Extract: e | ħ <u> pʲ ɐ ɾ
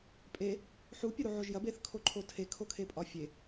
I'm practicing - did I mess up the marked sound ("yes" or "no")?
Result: no